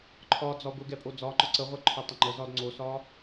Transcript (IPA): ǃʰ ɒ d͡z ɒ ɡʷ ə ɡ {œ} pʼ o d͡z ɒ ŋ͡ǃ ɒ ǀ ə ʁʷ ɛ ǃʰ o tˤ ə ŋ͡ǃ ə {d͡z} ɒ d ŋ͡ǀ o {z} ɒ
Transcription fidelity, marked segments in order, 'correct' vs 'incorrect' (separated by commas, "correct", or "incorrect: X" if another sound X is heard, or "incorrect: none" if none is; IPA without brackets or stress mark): incorrect: ɛ, incorrect: z, incorrect: s